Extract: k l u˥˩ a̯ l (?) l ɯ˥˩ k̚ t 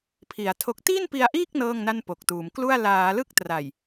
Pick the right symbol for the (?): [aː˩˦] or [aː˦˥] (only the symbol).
aː˩˦